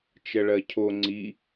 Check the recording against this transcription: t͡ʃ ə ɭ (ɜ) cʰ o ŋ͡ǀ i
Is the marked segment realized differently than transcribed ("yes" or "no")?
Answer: no